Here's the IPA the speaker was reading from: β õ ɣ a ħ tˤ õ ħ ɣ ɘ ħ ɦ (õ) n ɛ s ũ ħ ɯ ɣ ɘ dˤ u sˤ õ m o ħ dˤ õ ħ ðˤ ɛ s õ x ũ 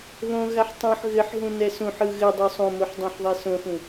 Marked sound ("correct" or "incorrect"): incorrect